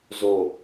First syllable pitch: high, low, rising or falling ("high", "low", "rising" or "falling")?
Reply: low